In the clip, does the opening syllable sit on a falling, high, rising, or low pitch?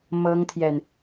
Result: high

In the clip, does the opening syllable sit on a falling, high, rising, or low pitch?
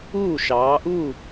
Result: falling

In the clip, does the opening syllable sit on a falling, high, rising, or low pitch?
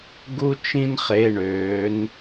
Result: high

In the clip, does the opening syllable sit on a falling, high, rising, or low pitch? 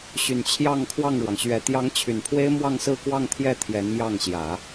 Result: low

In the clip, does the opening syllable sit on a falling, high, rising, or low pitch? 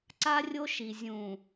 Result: high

